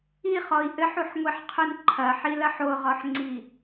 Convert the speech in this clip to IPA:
iχɔi̯ ʔɘħuħŋʷiħqʰun ǃʰɐħilɐħ oʁɔħŋ͡ǀi

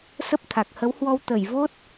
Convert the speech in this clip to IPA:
sə˦˥p̚ t̪ʰa˨˩k̚ hə˨˦whwɔ˧w t̪ə˧˩jvo˦˥t̚

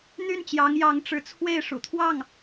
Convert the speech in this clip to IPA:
n̪y˥˩nt͡ɕjɑ˧˥ŋ jɑ˧˥ŋʈ͡ʂɻ̩˧˥t͡sʰwe˥˩ɪ̯ ʂṵ˨˩t̪ʰwɑ˥˩ŋ

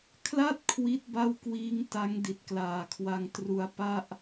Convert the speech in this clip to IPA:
kʰla˥˩t̚ kʰwi˦˥t̚ba˥˩wkwiː˦˥ŋ ta˦˥ŋdi˨˩t̚klaː˨˩kʰwa˧ŋ tru˧a̯pa˥˩ʔ

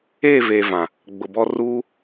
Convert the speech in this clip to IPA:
eː˦˨veː˨ vã˨ | ɡ͡bʊ˨bɔ˦ ruː˦

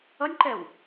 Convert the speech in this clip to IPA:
ʌnʲǃɛw

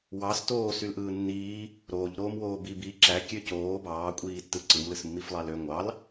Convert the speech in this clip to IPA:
wɑs toːsylʔɯː nːiː | ɾoːʎɾoːmwoː bi bi ǁækʲø coː bɑːkʷʼiːtːɯ ǀɯmlɯsmːiflˠɑl ø ŋʷɑl

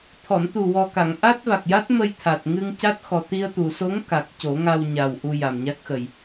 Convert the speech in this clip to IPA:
t̪ʰɔ˨˩˨nt̪u˨˩wɔ˨˩ka˨˩˨ŋ ʔa˦˥t̚va˨˩k̚ja˦˥t̚ mə˧jt̪ʰa˨˩t̚ ŋɨ˧ŋca˦˥t̚xɔ˨˩ t̪i˧ə̯t̪u˨˩˨so˧˥ŋ ka˨˩k̚ co˨˩˦ŋa˧wɲa˨˩w ʔu˧ja˨˩mɲa˦˥k̚xə˨˩j

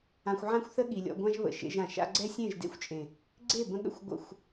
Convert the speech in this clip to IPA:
ã˧xʷʕã˦xʷθə˦ ɠi˨lʲɔ̰˧ɡʷã˦ʒ βə̰˨ʃḛ˧ʒã˨ ʃa̰˧ɡ͡ǀɛ˦sʲẽ˦˨ʒ dḛ˦xʷt͡ʃʼẽ˨ | ɡ͡ǀe˦˨bə̃˧ɠə̰˦˨xʷ ɡʷə̰˦˨xʷ

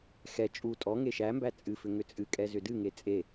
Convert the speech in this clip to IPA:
xɛ t͡ʃʼu tʼɔ ŋeʃæmbæ t͡sʼɨfʏ ŋʏt͡sʼɨkʼɛ zʏdɨŋe t͡sʼe

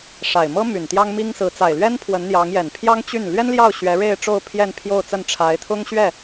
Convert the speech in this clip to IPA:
ʂa˨˩ɪ̯mɤ˥ my˨˩nt̪jɑ˥ŋmi˥ŋsɹ̩˧˥ t͡sa˨˩ɪ̯lɥɛ˥npʰwə˧˥n n̪jɑ˧˥ŋjɛ˨˩n pʰjɑ˥ŋt͡ɕy˥˩n lɥɛ˥nljɑ˥˩ʊ̯ ɕɥɛ˧˥ɻe˥˧ɪ̯ʈ͡ʂo˥˧ʊ̯ pʰjɛ˥˧npʰjo˥˧ʊ̯t͡sə˥˩n ʈ͡ʂʰa˧˥ɪ̯t̪ʰʊ˥ŋɕɥɛ˥˩

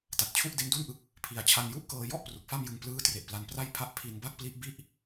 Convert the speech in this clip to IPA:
ta˨˩t̚ t͡ɕʰu˥˩ʔde˦˥ndu˥˩nʔɯ˦˥k̚ | pʰi˧a̯ t͡ɕʰa˧nju˥˩ʔkɤː˧ jɔ˥˩ʔ pru˨˩k̚fa˥˩mjɯ˧ŋ plɯː˦˥tre˨˩ʔpla˧n pra˥˩j pʰa˥˩ʔ pʰi˧nba˥˩k̚pli˦˥ʔbi˥˩ʔ

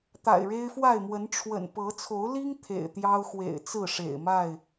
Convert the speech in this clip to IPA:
t̪a̰˨˩ɪ̯ɻe˦ɪ̯fwa˥˨ɪ̯mwə˨˦n ʈ͡ʂʰwə̰˨˩n pɤ˨˦ t͡sʰo˨˦ʊ̯li˦ŋ t̪ʰḛ˨˩ɪ̯t̪jɑ˦ʊ̯xwḛ˨˩ɪ̯ t͡sɹ̩˥˨ʂḛ˨˩ɪ̯ ma˥˨ɪ̯

